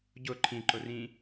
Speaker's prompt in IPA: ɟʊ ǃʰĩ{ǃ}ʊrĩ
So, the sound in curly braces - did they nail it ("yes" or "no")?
yes